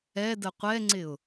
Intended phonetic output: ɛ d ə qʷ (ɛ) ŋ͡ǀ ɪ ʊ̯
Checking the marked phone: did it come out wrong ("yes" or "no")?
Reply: no